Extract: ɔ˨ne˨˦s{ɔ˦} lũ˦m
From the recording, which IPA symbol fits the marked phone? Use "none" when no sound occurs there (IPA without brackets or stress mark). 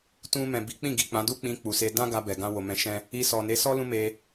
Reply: ɔ˦